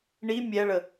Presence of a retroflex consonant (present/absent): present